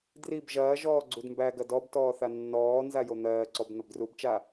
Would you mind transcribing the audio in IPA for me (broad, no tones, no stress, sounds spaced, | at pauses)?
d r i b ʒ ɐː ʒ ɔː ɡ͡ǀ u d m b æ ɡ ɐ d ɔ b t ɔː θ a nː ɔː n z a j o n̪ ɜː ǀ ɔ b n̪ ɐ b d r u b t͡ʃ a